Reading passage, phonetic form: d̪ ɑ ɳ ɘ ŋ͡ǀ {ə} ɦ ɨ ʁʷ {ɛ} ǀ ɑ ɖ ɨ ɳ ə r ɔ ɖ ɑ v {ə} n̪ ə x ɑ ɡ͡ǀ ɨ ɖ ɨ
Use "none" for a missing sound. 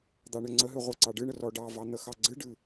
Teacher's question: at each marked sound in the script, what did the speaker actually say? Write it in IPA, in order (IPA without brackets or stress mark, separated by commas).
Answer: ə, ɛ, ɑ